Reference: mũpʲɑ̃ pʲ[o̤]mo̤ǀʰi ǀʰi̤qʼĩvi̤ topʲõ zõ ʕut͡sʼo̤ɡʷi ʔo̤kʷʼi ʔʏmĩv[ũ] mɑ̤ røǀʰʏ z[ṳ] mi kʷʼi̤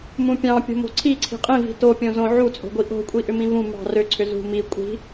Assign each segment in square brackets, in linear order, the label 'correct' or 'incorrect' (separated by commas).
correct, correct, correct